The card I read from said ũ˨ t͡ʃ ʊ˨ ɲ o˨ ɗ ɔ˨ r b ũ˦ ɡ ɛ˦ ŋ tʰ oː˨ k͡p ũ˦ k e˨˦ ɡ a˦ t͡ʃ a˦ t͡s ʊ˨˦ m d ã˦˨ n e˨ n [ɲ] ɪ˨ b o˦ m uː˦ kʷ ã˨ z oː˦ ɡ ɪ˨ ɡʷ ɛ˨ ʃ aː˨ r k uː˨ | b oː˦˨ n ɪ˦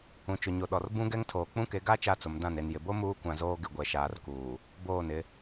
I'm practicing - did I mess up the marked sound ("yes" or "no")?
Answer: yes